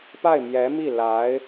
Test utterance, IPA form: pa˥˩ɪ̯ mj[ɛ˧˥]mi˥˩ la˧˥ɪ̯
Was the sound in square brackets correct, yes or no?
yes